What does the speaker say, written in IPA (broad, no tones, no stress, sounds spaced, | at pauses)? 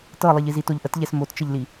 t ɤ lˠ i ʎ i z i t o ʎ ʔ ə t ʎ ɛ s m o t t͡ʃ ə ʎ l i